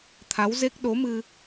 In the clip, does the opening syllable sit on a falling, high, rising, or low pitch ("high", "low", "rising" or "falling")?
rising